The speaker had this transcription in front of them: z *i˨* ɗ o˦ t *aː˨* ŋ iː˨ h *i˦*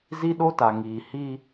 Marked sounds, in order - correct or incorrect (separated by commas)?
incorrect, incorrect, correct